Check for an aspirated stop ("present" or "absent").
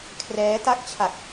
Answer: present